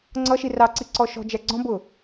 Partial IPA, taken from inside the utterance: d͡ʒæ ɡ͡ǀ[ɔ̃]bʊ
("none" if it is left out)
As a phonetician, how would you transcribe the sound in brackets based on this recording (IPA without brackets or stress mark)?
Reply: ɔ̃